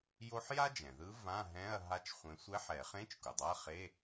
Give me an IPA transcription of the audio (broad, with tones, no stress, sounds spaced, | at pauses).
j o˥ ħ j a˥ d͡ʒ ɛ̃˩ ð ɯ˧˥ v ã˧˥˧ ɦ ɛ̃˧˥˧ ɐ̯ ɦ a˥ t͡ʃ χʷ ẽ˧˥ sʷ ɛ˧˥ ħ ɛ˨˩˦ χ ẽ˧˥˧ t͡ʃ k u˩ dˤ a˧˥˧ χ e˧˥˧